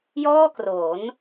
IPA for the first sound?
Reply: j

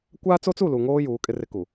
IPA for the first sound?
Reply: kʷ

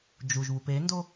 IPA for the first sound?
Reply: d͡ʒ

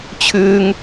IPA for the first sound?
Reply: t͡ɕʰ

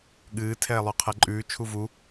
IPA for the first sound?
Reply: ɠ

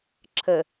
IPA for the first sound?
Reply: ǁʰ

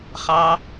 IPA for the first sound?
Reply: χ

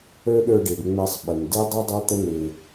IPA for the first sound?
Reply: ə˞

